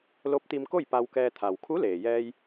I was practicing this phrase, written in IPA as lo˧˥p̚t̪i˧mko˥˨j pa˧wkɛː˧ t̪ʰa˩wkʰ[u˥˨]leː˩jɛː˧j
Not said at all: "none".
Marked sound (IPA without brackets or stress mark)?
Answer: u˧˥